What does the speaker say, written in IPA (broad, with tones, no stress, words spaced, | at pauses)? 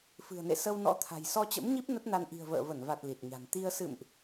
fɨ̤˨˩ə̯nḛ˧˨ sə˧wnɔ̰˧˥t̪ʰa̤˨˩j sɔ˧t͡ɕə̰˧˥mɲi˦˥p̚ nə˦˥t̚na˧n ʔi̤˨˩ə̯və̰ː˧˨və˧˩nva˨˩t̚ li˨˩t̚ɲa̤˨˩n t̪i˧ə̯ sɨ̰˧˨mʔ